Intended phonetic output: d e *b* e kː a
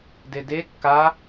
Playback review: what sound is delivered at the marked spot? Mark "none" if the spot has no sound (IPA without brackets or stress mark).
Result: d